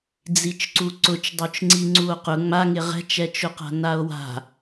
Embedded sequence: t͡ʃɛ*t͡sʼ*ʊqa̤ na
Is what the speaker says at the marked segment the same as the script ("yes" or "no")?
no